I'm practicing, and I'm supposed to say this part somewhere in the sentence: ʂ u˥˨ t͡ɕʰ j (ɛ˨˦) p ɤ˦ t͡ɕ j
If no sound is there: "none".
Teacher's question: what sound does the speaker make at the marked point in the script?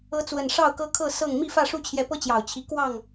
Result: ɛ˨˦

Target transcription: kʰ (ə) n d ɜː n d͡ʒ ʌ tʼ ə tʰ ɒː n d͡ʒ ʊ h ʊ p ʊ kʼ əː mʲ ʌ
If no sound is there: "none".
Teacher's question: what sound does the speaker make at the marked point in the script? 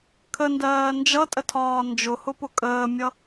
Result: ə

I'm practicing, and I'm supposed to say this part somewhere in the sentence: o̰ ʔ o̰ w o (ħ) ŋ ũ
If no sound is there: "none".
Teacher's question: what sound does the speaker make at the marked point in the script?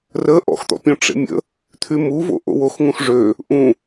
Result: x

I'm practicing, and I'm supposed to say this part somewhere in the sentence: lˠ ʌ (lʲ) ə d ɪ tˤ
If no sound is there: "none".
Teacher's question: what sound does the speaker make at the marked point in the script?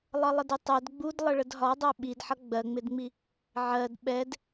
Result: lˠ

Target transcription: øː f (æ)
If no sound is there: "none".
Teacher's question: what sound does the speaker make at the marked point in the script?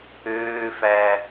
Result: æ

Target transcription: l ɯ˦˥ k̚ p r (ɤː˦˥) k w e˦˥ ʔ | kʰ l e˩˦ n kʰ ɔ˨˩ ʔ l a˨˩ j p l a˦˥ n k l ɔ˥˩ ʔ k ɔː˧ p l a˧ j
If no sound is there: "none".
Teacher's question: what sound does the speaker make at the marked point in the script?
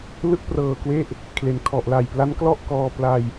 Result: ɤː˨˩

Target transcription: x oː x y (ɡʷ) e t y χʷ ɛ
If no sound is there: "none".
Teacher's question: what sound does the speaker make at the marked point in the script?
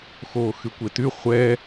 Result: kʷ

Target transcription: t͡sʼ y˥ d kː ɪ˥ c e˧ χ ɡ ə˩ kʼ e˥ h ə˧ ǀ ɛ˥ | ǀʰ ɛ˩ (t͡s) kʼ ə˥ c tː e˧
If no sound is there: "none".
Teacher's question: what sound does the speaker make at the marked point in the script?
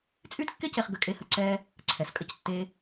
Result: s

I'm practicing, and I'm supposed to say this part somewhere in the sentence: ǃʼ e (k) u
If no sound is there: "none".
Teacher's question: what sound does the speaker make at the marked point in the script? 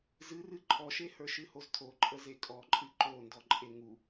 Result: ŋ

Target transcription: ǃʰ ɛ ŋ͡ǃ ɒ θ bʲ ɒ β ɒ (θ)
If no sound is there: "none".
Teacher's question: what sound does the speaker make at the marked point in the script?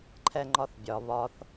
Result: θ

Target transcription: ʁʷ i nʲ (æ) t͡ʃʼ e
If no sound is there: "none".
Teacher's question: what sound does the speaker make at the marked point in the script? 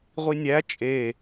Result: æ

